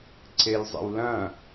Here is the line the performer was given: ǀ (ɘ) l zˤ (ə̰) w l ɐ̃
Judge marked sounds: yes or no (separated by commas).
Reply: no, yes